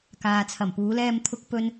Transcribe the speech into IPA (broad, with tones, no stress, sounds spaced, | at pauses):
k aː˨ t͡sʰ ɐ˨˩ m p uː˨˧ l ɛː˧ m t̪ʰ ʊ˨ k̚ p ɵ˨ n